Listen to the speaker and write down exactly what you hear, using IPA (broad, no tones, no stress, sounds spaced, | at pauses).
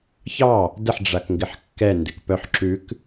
ç ɑ | d ə ħ ɖ͡ʐ a k ŋ ɡ ɪ ħ kː ɛ n d ɪ k p œ ħ ǁ ʉ k